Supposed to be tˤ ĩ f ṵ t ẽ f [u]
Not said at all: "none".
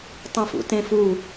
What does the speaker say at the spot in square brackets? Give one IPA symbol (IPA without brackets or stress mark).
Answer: u